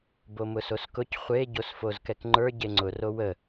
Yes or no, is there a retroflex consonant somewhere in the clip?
no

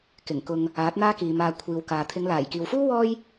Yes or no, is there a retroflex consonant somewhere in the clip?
no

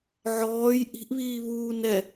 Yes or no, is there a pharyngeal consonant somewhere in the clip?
yes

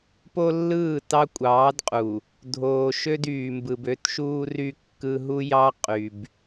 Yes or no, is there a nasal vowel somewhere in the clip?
no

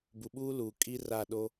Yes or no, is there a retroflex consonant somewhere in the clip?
no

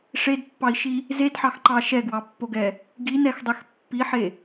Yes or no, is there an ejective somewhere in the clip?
no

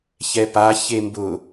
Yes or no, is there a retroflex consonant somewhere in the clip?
no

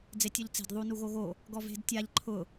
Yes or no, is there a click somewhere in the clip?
yes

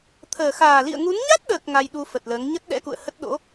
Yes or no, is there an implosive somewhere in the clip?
yes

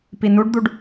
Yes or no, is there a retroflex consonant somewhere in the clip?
yes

